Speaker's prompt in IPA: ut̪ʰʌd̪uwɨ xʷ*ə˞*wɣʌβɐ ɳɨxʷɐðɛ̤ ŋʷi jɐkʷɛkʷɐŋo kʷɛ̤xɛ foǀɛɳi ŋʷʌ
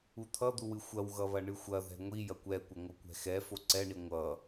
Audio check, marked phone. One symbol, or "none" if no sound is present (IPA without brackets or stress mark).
ɐ